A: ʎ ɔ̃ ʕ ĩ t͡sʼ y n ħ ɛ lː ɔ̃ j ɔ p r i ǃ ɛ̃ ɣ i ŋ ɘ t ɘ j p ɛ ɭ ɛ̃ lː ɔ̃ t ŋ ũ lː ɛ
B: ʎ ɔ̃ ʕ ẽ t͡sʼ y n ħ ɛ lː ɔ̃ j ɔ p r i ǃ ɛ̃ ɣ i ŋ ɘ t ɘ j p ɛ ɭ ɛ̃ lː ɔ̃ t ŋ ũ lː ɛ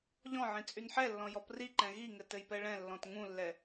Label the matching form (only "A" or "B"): A